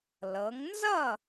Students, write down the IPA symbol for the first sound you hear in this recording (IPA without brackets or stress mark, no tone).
l